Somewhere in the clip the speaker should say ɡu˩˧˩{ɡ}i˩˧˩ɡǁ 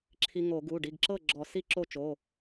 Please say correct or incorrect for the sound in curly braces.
incorrect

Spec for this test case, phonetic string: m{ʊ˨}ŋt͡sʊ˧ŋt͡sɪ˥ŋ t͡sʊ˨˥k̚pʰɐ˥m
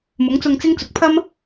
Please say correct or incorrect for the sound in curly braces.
incorrect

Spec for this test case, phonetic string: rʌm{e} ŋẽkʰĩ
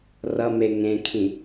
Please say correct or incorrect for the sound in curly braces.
correct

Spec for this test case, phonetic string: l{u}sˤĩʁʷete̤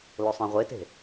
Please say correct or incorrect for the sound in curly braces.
incorrect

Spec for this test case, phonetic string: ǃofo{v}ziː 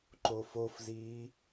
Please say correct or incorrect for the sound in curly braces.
incorrect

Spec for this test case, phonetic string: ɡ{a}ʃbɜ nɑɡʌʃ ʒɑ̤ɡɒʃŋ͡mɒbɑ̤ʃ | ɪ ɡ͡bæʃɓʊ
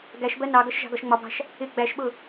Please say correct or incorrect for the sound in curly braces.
incorrect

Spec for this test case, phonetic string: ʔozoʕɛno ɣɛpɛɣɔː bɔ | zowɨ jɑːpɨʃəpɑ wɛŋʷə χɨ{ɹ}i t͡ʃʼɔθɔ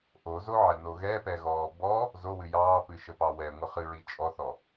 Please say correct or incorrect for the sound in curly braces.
correct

